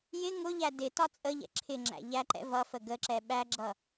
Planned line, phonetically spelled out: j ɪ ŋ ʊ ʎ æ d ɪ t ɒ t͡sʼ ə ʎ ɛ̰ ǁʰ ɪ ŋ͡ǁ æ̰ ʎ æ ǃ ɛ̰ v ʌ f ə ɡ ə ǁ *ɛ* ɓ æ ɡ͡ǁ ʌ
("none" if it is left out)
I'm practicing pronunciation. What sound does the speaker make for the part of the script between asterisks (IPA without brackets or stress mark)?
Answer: ɛ